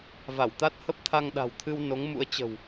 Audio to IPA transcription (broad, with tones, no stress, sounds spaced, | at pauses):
v a˧˩ w t̪ a˦˥ t̚ h ə˦˥ p̚ t̪ʰ a˧ ŋ ɗ a̤˨˩ w t̪ʰ ɨ˧ w n o˨˦ ŋ m ṵ˧˥ ə̯ t͡ɕ ə̤˨˩ w